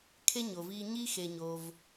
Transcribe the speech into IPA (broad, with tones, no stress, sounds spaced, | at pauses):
kʰ e˥ ɲ o˨ v iː˦ ɲ i˥ x e˨ ɲ oː˨ v